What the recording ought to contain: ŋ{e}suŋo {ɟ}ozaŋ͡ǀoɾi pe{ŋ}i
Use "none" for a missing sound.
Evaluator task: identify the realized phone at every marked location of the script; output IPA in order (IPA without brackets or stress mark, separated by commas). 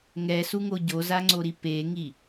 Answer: ɛ, ɟ, ŋ